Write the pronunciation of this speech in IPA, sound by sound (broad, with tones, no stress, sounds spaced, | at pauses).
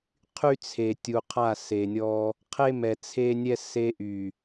qʰ y˦ t͡sʰ e˨ tʲ u˨ qʰ a˦˨ s e˨ nʲ ɔ˦ | qʰ e˦ m ɛ˨ t͡sʰ e˦ nʲ ɛ˦ s e˦ ʔ y˨